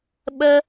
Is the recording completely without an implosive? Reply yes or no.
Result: no